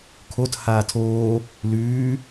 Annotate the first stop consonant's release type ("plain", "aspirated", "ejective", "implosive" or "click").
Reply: aspirated